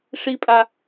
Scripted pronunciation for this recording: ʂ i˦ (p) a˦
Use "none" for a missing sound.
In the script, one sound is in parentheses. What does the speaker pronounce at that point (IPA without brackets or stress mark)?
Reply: pʼ